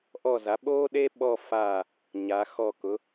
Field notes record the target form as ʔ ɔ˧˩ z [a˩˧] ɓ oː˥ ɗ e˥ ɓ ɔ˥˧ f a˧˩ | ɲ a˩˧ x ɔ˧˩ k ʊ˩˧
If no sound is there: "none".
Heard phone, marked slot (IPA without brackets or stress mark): a˩˧